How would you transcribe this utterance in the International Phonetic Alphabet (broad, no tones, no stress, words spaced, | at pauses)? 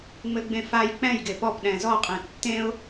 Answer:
ŋ͡mɘɡ͡bẽfaj k͡pɛ̃j ɡepɔp ɗɛ̃zɔqʼẽ tːẽʊ̯